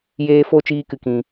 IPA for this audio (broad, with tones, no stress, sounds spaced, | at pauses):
j eː˧ f o˦˨ t͡ʃ iː˧ k ɨ˨ k ĩ˨